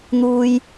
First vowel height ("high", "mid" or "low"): high